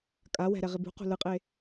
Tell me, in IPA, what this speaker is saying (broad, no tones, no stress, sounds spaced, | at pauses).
kʼ a w ɛ̤ ɾ ɛ ʁ i b ṳ q ṳ l ɯ qʼ e